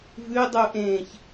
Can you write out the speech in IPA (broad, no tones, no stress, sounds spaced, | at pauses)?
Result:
v ʉ dˤ u ʔ ẽː ç